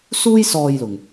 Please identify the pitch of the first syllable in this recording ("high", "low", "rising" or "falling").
high